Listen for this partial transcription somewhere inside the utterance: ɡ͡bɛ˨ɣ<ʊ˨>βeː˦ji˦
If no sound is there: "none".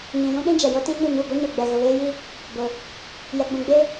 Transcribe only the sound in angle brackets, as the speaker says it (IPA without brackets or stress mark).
ʊ˨